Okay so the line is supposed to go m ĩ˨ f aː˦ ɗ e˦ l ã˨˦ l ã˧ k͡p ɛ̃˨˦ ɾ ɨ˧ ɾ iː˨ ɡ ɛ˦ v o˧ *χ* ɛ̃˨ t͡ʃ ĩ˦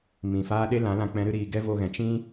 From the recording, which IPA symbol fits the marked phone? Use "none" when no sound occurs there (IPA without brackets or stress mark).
ɣ